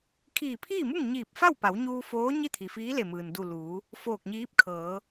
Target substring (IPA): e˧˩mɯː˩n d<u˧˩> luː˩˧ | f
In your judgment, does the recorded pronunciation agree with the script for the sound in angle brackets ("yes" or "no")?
yes